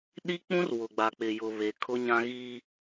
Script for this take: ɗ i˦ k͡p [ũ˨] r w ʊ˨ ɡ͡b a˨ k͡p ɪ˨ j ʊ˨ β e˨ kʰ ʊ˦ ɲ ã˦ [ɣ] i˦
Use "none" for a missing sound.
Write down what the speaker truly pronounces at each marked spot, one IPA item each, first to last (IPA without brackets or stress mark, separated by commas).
ũ˦, ɣ